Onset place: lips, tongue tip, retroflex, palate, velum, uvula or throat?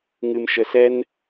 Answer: velum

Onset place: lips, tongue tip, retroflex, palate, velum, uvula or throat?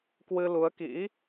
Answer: velum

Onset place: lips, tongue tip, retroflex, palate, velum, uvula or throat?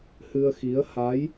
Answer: throat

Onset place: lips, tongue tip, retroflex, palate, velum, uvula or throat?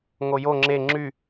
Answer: velum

